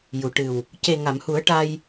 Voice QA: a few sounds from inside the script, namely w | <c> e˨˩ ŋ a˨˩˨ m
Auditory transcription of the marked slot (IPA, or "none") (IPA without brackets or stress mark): c